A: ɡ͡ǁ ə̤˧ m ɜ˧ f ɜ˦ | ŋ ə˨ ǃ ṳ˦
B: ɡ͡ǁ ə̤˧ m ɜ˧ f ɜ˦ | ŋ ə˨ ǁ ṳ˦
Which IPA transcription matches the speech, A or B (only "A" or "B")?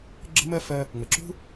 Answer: B